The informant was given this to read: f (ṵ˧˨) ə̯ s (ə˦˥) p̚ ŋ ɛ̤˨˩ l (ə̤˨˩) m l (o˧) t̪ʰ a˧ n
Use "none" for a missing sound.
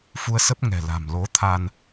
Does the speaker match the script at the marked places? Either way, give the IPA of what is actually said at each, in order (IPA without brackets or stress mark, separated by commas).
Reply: u˧, ə˦˥, a̤˨˩, o˨˦